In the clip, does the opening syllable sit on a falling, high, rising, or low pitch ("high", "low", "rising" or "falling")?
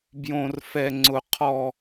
high